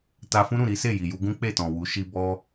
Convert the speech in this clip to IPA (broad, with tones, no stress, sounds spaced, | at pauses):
t a˧ f ũ˦ ɾ ũ˦˨ ɾ i˨˦ s e˦˨ j i˨ j u˧ ɡ ũ˦ k͡p e˦˨ t ɔ̃˨ w u˨˦ ʃ i˧ b ɔ˦